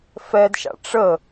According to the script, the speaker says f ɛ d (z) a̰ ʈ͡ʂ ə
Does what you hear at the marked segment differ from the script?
yes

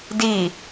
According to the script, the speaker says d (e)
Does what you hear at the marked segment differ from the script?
yes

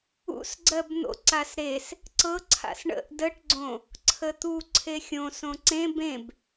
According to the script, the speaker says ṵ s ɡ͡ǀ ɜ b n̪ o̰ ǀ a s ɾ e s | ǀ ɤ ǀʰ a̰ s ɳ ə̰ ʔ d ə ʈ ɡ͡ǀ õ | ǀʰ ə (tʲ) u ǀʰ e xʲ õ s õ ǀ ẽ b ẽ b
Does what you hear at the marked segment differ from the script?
yes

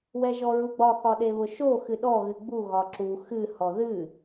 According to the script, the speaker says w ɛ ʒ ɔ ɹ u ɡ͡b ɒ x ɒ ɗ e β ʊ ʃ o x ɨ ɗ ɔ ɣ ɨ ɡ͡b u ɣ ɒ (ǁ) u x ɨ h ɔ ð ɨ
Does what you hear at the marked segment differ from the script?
no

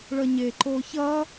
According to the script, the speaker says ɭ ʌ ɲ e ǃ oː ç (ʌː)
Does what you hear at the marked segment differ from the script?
no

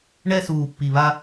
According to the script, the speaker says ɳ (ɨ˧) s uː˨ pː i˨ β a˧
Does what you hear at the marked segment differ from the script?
yes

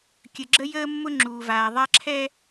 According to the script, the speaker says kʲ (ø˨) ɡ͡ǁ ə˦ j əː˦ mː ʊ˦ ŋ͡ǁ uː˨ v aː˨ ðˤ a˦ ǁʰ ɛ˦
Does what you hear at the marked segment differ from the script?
yes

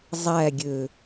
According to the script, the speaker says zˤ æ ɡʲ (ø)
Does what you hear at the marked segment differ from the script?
no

